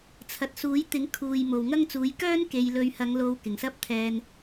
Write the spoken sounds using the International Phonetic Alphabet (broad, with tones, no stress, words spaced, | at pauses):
t͡sʰɐ˨t̚suː˨˥j t̪ɪ˨˥ŋkʰuː˨j mo˨wŋɐ˥ŋt͡suː˨˥j kœː˥n ke˨˧j lɵ˨˧ɥhɐ˨˧ŋ lo˧wkɪ˨˩ŋsɐ˥p̚t̪ʰɛː˧n